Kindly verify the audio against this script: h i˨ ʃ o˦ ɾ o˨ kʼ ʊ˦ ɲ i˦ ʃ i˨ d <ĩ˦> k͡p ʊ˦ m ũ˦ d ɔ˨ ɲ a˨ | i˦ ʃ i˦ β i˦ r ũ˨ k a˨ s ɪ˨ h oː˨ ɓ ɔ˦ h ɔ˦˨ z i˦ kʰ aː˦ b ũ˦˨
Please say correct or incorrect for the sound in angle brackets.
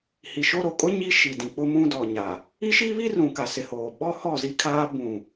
incorrect